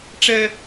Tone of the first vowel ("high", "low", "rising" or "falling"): high